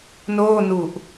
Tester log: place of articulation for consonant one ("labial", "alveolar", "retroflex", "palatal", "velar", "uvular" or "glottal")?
alveolar